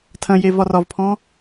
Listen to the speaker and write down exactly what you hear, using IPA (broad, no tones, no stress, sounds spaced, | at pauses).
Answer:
tʰ ɐ̃ j e v ɒ r ɒ v pʰ ɔ̃